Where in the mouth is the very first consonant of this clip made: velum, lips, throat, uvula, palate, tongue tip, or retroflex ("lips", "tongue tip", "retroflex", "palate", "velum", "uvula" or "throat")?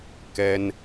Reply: velum